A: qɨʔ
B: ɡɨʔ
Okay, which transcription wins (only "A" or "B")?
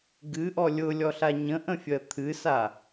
B